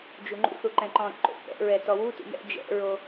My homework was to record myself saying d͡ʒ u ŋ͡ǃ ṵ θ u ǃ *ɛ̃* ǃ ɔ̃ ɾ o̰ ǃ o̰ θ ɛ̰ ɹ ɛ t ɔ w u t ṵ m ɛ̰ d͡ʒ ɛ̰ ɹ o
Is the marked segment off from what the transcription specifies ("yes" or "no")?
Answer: no